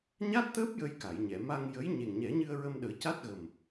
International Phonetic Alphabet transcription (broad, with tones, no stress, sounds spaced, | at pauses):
ɲ a˦˥ t̚ t̪ əː˦˥ p̚ j ə˧ j k a˨˩˨ j ɲ ɛ˨˩˨ m a˧ ŋ j ə˧˥ j ɲ e˨˩ ŋ ɲ ɛ˨˩˦ ɲ ɨ˧ ə̯ ɹ ə˧ m ɗ əː˨˩˦ c a˦˥ t̚ ɣ ə˨˩ m